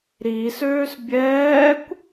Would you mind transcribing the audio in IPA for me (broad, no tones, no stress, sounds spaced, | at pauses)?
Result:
ɾ i s øː s bʲ ɛː kʷ